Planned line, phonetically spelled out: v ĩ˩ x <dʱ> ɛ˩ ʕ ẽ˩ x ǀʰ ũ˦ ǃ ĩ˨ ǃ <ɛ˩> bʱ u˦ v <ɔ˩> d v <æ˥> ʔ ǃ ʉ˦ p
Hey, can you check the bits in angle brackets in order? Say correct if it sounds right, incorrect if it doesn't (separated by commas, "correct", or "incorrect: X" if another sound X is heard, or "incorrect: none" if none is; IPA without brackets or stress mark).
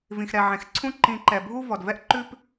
incorrect: ɾ, correct, correct, incorrect: ɛ˥